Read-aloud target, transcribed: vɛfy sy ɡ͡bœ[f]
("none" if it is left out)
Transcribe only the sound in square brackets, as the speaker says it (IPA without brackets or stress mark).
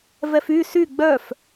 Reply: f